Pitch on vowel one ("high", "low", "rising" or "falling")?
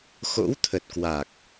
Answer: rising